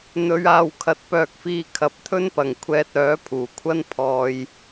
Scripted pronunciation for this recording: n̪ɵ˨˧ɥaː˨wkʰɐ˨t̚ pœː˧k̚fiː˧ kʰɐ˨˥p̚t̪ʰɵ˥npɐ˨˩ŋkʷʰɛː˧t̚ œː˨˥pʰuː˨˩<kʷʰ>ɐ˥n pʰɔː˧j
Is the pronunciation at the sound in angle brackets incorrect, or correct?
correct